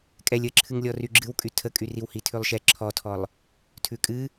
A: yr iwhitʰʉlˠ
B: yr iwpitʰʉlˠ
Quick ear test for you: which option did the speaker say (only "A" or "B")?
A